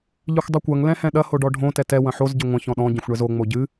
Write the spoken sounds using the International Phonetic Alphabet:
ʎ ɨ xʷ dˤ ɨ kʷ ɐ ŋ l ɛ̃ h ɛ̃ ɗ ɐ h o ɖ ɔ ɖʱ õ t ɛ t ɛ w ɐ̃ ħ o z ɟ ɘ ŋʷ ɐ̃ ç ɔ̃ ɗ ɔ̃ ɟ ɐ̃ xʷ ɳ ɛ z o ŋ͡m o ɟ ɨ

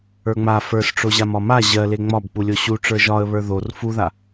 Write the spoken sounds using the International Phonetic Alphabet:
ə˞ ŋ͡m a f ə˞ s ʈ͡ʂ o ʑ a m ɒ m a ʑ ɜ l e ŋ͡m ɒ b k͡p u lʲ o ɕ u ʈ͡ʂ ə˞ ʒ ɒ ə̯ β ə˞ ð o r f u ð a

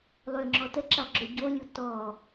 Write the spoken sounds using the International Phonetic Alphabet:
lˠ ø ŋ͡ǁ ɔ t ə ǁ a ɡ͡ǁ ø ɟ o lʲ u t ɔ

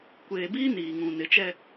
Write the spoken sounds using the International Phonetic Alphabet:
kʷ eː˨ b iː˦ n iː˨ ŋ ũ˨ n ɪ˨˦ t͡ʃ ɛ˦

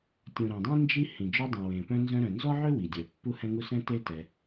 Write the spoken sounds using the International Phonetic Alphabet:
tʲ ũ˩ ɾ ɛ̃˩ dˤ ĩ˥ n d͡ʒ i˥ h ĩ˩ d͡ʒ œ˦ dˤ ũ˩ w ẽ˩ p œ̃˦ n z œ̃˦ ɾ œ̃˨ n z ɔ˥ ʕ ø˥ w i˩ dʲ œ˩ pː u˦ h ɛ̃˦ ŋ u˦ s ɛ̃˥ t e˥ t ɛ˨

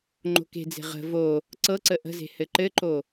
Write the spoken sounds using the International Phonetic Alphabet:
ŋ͡ǃ o̤ k e̤ d͡z e̤ ʁ ə̤ v o | ǀ ɤ ǀ ə ʔ ə̤ z e̤ h ɘ ǃ ɘ ǃ o

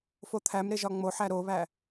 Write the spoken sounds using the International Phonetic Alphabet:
f o t̪ʰ æ m ɾ e ʒ ɒ ŋ͡m o ħ æ ɾ o β æ

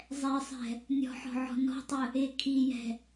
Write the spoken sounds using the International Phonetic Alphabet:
zˤ ɛ sˤ ɛ̤ | nʲ ɔ̤ ħ ɔ̤ ʕ ɔ̤ n ɔ̤ tˤ ə | ɪ kʰ i j ɛ̤

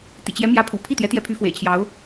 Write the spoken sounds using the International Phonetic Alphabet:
t̪ ḭ˨˩ t͡ɕ j ɛ˧˥ m j ä˧˥ pʰ ṵ˨˩ pʰ i˥˩ t̪ j ɛ˧˥ t̪ j ɛ˧˥ pʰ y˧˥ f w ḛ˨˩ ɪ̯ t͡ɕʰ j ɑ˧˥ ʊ̯

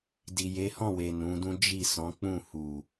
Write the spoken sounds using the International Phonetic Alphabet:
d i˨ j e˨˦ h ɔ̃˦˨ w e˨ n ũ˨˦ d ũ˦ d͡ʒ i˦˨ s ɔ̃˨˦ k͡p ũ˦˨ h u˨

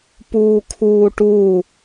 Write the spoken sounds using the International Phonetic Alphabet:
p uː kʰ uː ʈ u

